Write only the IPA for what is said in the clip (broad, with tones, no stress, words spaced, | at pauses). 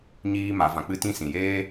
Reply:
ɲiː˦ma˨˦vã˧ k͡pɨ˦tĩ˦ sĩ˨jeː˦